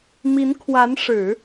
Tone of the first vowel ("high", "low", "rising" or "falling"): rising